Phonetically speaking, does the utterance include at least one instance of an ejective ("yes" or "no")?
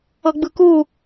no